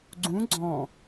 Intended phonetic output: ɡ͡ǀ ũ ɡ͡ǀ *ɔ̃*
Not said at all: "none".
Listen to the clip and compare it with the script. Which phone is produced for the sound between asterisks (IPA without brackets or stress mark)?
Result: ɔ̃